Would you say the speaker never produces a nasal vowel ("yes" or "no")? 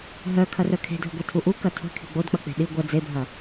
yes